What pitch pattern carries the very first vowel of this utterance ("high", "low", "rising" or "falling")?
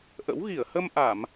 rising